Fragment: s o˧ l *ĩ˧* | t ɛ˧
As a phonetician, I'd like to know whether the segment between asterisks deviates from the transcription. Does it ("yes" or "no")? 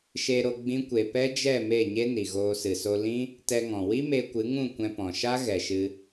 yes